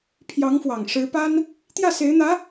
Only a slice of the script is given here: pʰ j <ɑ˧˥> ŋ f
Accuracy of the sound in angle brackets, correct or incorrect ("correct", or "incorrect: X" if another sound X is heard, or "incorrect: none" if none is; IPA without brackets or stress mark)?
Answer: correct